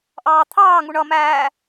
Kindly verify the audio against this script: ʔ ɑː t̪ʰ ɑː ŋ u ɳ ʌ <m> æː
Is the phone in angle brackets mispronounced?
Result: no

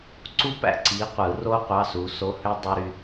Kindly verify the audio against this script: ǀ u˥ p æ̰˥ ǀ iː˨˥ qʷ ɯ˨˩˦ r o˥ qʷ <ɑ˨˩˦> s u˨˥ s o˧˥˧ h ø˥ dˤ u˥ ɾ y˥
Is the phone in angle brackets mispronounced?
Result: yes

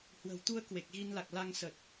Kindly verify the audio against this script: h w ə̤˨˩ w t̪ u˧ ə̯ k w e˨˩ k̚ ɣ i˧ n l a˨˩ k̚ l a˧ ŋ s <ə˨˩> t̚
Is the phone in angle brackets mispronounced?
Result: no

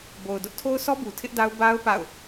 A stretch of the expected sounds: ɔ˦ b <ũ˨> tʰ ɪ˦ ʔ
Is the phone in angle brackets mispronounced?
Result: yes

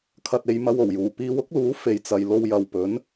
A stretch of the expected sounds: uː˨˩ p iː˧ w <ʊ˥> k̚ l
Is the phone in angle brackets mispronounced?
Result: no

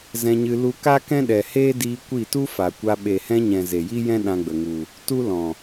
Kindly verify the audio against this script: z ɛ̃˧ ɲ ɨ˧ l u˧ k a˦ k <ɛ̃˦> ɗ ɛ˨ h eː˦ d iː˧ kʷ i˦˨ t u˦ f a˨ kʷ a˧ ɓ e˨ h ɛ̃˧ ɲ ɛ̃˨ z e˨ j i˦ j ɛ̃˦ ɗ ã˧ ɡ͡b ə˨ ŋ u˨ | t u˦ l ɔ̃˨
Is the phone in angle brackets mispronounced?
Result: no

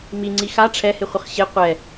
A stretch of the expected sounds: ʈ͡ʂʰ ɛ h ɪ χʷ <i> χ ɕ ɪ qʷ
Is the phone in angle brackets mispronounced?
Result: yes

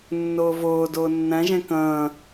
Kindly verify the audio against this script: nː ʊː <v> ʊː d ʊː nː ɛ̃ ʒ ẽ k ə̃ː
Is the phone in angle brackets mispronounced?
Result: no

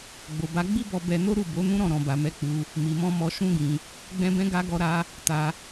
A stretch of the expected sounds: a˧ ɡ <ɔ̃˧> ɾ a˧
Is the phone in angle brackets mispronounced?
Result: yes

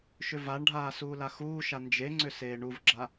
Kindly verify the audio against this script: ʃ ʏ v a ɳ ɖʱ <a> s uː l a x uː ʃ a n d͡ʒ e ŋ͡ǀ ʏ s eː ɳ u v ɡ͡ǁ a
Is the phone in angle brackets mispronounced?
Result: yes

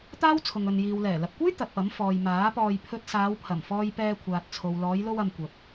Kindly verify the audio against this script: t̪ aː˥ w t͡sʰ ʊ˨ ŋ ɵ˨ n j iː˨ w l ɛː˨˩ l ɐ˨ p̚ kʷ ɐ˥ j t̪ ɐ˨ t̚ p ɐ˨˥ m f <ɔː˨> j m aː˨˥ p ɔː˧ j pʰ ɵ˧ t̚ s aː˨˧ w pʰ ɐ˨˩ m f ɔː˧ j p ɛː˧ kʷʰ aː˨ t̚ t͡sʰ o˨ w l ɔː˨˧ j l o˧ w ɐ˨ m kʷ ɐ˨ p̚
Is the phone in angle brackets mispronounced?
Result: no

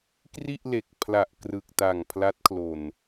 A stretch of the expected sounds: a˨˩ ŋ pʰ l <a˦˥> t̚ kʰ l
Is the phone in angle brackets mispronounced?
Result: no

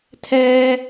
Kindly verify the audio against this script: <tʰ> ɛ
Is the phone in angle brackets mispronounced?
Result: no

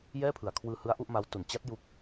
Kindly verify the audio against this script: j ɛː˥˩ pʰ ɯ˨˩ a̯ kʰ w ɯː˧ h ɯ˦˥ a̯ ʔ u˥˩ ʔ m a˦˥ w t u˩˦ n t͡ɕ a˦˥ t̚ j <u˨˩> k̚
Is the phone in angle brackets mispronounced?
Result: yes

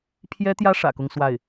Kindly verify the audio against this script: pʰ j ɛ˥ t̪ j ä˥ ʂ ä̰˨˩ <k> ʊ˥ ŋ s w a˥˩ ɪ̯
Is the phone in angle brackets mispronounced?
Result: no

